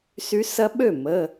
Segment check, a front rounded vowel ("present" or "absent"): present